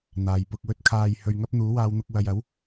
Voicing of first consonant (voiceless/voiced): voiced